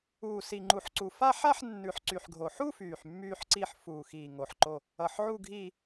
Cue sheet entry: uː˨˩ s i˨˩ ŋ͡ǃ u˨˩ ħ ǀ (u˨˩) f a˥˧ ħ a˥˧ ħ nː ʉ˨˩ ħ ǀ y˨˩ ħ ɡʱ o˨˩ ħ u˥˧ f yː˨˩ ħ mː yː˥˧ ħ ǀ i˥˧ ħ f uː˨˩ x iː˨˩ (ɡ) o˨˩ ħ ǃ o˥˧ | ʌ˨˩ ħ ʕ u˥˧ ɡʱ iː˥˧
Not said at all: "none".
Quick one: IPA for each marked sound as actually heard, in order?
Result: u˨˩, ŋ

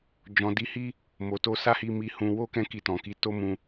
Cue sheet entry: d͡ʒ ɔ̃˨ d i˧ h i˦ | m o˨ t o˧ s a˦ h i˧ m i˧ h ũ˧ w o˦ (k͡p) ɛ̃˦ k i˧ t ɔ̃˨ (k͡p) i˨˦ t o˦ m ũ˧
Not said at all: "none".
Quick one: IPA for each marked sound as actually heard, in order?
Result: k, k

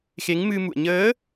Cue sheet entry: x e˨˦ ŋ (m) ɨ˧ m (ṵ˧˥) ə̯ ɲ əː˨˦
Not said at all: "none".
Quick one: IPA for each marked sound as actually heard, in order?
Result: m, ṵ˧˨

